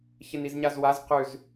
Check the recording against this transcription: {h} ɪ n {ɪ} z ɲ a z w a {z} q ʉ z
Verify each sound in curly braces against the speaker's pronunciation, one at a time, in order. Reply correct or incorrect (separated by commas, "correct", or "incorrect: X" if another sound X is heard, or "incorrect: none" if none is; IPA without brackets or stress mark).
incorrect: ç, incorrect: i, correct